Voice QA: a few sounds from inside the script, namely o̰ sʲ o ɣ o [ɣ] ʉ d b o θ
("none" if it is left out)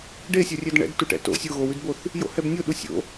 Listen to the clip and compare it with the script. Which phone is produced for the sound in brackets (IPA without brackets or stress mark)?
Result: w